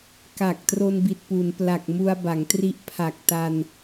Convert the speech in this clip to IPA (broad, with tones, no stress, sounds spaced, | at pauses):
k a˨˩ k̚ t r o˧ n b i˨˩ t̚ p u˩˦ n p l a˨˩ k̚ m u˧ a̯ b a˩˦ ŋ t r i˦˥ ʔ pʰ a˨˩ k̚ t a˧ n